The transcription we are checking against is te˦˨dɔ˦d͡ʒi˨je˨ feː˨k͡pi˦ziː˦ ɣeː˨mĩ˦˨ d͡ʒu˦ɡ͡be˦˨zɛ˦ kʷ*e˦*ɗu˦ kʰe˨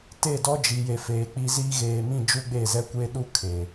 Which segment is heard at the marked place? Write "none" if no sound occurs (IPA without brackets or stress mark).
e˦